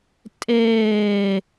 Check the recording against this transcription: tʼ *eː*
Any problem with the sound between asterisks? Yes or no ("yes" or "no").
no